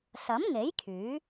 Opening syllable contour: rising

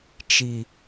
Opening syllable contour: high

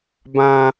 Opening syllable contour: high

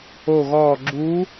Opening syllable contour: falling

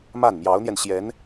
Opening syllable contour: falling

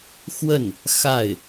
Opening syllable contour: falling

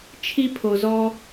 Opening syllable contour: high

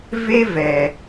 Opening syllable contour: high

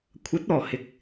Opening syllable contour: rising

